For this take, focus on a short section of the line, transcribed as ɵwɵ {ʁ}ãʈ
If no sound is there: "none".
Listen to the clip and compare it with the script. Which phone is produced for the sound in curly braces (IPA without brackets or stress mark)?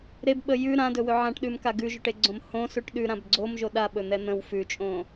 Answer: ʕ